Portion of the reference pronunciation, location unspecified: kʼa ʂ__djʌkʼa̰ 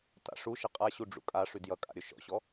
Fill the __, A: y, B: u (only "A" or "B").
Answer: A